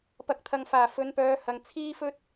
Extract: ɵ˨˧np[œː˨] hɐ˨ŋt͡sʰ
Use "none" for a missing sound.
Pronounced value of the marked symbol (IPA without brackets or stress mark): œː˨˧